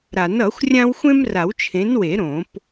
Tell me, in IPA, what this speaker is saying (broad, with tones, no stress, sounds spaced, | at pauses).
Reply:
ɾ a˨˩˦ n ʌ˨˩˦ xʷ rʲ ã˥ w xʷ ẽ˥ m r a˨˩˦ w t͡ʃʰ ẽ˨˥ n w e˨˩˦ ɾ õ˨˩˦ p